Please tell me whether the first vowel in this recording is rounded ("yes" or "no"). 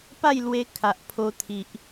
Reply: no